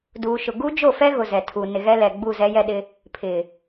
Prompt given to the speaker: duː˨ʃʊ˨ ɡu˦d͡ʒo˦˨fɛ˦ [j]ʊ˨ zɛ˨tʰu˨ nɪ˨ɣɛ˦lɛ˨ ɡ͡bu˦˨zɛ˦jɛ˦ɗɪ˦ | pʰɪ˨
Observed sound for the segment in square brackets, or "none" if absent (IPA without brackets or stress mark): ɣ